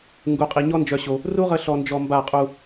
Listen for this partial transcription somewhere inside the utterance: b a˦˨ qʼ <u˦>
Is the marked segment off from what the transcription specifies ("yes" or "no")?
yes